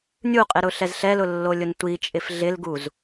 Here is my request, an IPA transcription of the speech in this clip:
nʲuqʼɪɾʊɬɛz ɬɛlʊlːolʲʊn tʷit͡ʃʼɪf ɮɪlɡuz

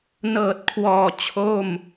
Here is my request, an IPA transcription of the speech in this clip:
nɤː˨˩t̚kʰwɔː˨˩ t͡ɕʰo˥˩m

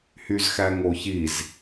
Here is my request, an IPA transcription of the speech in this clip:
hyzxæŋoçiz

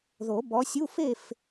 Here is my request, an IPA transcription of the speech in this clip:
ðo˨˩˦bɔ˨˦sʲu˧˥˧f e˥˨f

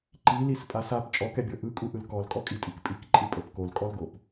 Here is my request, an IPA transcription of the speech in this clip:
ǃilispʼas ap t͡ʃʼɔkɛbʲɤ ʔɯkʼuʔɯl kɔlkʼɔkʼitʼik pʼikǃʼɯpʼɤp kolkʼɔlɡop

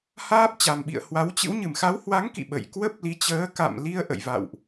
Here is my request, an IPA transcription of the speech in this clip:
haː˦˥p̚t͡ɕa˨˩mɓḭ˧˨ə̯ hwa˨˦wt͡ɕɨ̰˧˥w ɲɨ˧˩mxa˨˦whwa˨˦ŋkḭ˧˨ ɓə̰˧˨j kwə˦˥p̚li˨˦t͡ɕəː˨˦ ka̰˧˨mli˧ə̯ ʔə̰˧˨jva̰˧˨wʔ

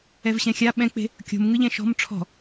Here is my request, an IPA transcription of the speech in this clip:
ɛvɕɛ̃xʲa ɓɛ̃k͡pe̤ | kʲo̤mŋɯʎɛ̃ ʃɔ̤m ʈ͡ʂʰɔ̤

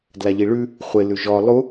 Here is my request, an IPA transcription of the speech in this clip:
dlaʎiɭʉ | χʷɪ lʉʒɔ lˠu

